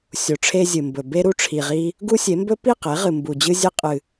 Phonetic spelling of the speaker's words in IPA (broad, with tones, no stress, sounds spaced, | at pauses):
sʲ o˨ ʈ͡ʂʰ e˦ zʲ ɨ˨ m b ɵ˨ b e˦ ɾ u˦ ʈ͡ʂʰ i˨ ʁ i˦ | ɡ u˦ sʲ e˨˦ m b ɵ˦ p i˦˨ q e˨˦ ʁ ɨ˨ m b u˨ d͡ʑ ɨ˦ zʲ e˦ qʼ ɨ˨